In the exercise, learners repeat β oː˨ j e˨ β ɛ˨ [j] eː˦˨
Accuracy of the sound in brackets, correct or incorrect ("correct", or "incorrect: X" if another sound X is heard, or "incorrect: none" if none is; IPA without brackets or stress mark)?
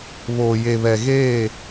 incorrect: ɣ